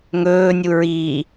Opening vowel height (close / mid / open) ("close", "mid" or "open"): mid